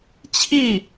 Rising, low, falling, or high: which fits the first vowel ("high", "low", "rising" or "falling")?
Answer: falling